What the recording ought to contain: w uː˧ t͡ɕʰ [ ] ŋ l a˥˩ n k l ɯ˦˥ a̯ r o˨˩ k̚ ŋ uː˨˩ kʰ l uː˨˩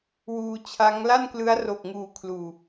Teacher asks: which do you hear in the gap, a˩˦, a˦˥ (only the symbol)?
a˦˥